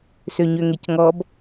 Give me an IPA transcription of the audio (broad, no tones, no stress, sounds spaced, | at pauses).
s ø ɲ ø ŋ e c ŋ ɔ b